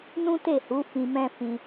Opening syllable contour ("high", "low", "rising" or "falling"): high